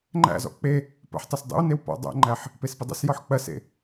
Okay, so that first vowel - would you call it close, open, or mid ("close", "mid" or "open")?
open